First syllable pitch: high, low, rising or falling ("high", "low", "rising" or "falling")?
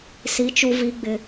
rising